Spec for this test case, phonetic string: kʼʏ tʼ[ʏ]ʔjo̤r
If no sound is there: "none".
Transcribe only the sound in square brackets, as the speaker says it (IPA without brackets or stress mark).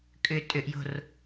ʏ